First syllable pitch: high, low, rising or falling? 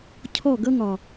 falling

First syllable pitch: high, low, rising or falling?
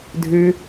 high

